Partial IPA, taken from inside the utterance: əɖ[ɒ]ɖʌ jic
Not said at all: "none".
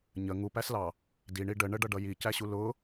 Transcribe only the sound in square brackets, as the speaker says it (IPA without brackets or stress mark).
ʌ